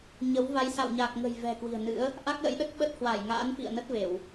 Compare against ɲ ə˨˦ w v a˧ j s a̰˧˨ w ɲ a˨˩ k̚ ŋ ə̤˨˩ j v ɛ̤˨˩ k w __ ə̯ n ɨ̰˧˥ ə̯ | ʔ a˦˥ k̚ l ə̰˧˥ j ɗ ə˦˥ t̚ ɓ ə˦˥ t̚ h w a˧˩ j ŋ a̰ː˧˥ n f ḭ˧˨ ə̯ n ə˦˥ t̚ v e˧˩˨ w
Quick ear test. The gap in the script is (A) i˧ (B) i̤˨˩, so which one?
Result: B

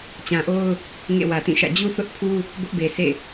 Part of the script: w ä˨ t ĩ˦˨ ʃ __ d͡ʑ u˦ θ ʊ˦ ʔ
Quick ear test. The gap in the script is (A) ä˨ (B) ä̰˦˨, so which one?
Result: B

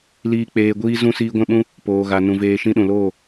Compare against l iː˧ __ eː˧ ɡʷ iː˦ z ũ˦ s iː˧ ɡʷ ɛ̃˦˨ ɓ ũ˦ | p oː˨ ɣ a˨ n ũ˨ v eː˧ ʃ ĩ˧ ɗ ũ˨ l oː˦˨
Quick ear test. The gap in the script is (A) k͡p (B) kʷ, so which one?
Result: A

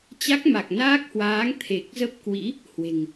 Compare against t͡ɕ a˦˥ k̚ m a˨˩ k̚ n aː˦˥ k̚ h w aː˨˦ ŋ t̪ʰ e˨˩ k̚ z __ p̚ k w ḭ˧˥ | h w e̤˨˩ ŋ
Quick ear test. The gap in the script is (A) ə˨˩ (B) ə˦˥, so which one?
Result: B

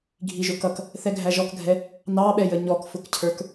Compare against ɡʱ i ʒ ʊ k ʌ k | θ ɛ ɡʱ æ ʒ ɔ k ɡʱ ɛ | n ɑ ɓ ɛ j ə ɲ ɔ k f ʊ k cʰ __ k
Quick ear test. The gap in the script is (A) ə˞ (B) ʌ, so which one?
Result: A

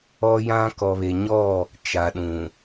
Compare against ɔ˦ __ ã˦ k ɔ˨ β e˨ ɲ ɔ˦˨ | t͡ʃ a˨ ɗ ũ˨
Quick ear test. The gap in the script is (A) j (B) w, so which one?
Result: A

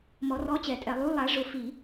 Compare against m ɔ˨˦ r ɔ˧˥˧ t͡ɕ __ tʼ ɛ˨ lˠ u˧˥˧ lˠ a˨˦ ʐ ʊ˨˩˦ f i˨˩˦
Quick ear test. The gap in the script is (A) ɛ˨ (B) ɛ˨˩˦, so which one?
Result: B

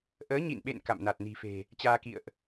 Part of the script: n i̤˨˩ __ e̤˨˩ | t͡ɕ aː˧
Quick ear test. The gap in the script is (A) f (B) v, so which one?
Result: A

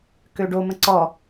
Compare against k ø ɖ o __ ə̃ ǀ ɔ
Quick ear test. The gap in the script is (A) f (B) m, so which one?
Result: B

